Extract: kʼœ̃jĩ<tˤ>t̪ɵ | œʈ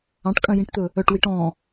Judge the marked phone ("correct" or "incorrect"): incorrect